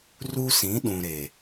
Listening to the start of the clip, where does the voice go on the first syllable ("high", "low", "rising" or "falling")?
high